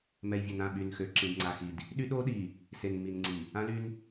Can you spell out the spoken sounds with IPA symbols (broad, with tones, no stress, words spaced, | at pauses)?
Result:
mɛ˨jvʲø˨nã˦˨ ɓy˨nxø˨ ǁĩ˨dŋ͡ǀa˨xi˨d | ɗy˦ɗo˦ɗi˨ | se˨nmi˨nŋ͡ǀi˨ | ã˦ly˦n